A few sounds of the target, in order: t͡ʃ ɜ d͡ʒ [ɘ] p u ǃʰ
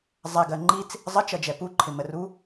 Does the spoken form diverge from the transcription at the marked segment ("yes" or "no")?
yes